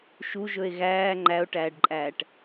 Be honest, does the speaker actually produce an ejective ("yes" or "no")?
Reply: yes